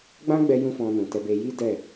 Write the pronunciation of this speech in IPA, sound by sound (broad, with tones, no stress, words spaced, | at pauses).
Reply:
ɡ͡bã˦ɡ͡bɛ˧ jũ˦fɔ̃˧nũ˨tɛ˧ be˧ji˦ dɛ˦˨